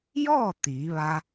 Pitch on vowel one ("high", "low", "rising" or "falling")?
falling